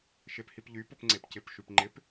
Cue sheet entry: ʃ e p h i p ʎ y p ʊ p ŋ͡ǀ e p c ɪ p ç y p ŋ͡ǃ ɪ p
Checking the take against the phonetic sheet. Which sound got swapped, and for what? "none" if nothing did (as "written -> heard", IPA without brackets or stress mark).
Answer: ç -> ʃ